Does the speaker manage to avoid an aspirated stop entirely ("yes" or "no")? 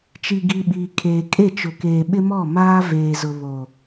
no